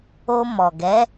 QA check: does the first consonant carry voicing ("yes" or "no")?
yes